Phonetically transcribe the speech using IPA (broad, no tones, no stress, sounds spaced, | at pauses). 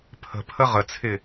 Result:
pʰ ə̤ pʰ ə ʁ ə t͡sʰ ɪ